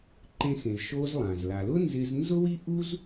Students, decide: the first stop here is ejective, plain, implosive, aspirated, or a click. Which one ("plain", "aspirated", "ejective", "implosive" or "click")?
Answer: click